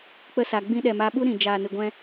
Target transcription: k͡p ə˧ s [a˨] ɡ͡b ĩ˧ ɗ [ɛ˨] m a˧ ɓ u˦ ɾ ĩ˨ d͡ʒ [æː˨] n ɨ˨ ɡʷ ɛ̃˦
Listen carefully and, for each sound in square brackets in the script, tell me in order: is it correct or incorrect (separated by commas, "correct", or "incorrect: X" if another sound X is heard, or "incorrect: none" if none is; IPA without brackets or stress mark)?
correct, correct, incorrect: aː˨